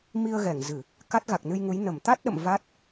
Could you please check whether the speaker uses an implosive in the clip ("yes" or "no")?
yes